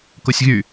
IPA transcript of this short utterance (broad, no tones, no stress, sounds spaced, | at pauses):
k o sʲ ɣ y